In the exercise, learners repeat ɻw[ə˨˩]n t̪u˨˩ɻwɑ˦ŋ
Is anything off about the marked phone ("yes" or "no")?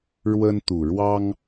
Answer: yes